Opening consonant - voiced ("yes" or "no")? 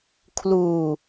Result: no